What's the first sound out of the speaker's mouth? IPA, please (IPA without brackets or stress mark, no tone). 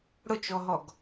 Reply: ɽ